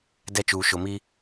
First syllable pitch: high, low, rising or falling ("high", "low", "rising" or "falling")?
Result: falling